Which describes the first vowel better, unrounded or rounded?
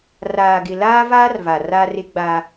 unrounded